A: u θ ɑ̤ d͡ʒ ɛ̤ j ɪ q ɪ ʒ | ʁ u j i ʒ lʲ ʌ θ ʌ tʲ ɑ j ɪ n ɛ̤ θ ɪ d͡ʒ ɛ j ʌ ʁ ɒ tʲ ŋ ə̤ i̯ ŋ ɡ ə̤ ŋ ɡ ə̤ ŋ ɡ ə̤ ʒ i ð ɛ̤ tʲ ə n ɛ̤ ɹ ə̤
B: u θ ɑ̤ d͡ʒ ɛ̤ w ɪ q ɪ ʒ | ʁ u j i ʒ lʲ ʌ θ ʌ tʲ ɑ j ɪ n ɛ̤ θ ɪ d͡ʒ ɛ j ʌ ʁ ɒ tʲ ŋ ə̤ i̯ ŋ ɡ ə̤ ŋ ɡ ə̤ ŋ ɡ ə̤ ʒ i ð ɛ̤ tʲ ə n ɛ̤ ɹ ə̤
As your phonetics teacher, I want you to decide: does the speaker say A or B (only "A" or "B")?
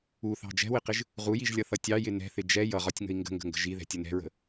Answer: B